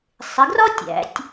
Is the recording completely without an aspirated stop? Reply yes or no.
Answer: yes